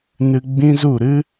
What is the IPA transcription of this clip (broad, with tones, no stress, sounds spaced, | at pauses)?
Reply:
n ɨ˧ ɡ͡b ĩ˦ z u˦˨ ɾ ɨ˦